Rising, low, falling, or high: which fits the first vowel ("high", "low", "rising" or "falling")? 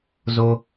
low